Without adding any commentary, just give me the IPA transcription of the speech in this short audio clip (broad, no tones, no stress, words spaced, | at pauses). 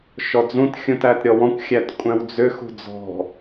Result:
ʃɔd͡zũt xʲũtætɾʲɔwɔ̃kʷ xʲætkʷʼæ̃wd͡zʏ xṳd͡zɔ̤